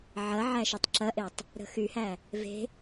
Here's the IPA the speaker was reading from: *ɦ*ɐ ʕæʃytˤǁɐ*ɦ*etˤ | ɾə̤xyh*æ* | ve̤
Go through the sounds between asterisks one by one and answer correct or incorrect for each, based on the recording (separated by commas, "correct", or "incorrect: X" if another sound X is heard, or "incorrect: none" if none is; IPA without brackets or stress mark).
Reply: incorrect: ʕ, incorrect: ʔ, correct